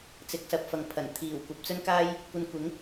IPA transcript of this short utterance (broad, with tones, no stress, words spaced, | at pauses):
t͡sɪ˧k̚sɐ˧p̚fɐ˨ŋ pʰɐ˨˩n t̪ʰiː˨˩w kʷɐ˨˥p̚t͡sɵ˥nkaː˥j | kʷɐ˧nkʷɪ˨˥ŋ